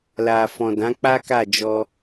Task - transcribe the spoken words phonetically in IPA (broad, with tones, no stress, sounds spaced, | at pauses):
l a˨ f ɔ̃˨ d ã˨˦ k͡p a˦ k a˦˨ d͡ʒ ɔ˧